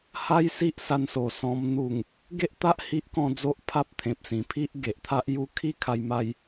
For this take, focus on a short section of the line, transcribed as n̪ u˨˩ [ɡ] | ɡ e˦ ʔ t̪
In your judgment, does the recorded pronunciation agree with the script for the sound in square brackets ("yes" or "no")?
no